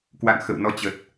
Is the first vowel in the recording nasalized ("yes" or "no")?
no